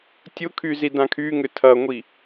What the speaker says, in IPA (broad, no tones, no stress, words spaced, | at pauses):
tʲʊkʰyzi dãkʰyŋʏ tʰɐŋʷi